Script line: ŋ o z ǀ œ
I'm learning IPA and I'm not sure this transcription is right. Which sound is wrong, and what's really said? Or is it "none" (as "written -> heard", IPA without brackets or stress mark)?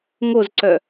none